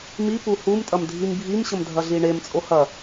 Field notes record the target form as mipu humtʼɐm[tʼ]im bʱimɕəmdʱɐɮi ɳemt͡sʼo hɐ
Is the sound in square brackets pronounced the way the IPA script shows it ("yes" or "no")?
no